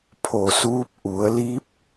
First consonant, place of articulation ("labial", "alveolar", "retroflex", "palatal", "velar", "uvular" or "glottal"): labial